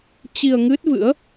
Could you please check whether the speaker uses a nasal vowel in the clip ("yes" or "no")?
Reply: no